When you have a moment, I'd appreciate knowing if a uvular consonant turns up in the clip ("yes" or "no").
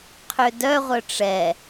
yes